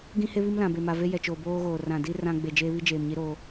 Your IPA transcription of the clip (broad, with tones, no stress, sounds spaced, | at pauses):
ɡ ĩ˦ h e˦ β i˦ m l ã˨ b e˨ m a˨ v e˦ j ɛ˨ t͡ʃ oː˨ b oː˦ ɣ oː˨ r ã˨ d i˦ r ã˦ ɡ͡b e˨ d͡ʒ eː˦ β i˦ d͡ʒ eː˨ m ɲ i˦ ɾ oː˦